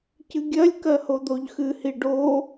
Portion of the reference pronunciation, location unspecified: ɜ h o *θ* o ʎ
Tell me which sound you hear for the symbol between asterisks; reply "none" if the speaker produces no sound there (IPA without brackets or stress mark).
d̪